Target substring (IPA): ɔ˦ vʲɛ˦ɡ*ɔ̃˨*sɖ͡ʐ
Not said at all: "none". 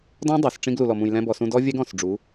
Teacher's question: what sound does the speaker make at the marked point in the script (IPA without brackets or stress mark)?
ɔ̃˨